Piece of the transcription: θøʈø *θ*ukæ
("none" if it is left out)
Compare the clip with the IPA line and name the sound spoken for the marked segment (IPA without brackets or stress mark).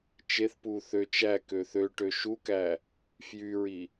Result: ʃ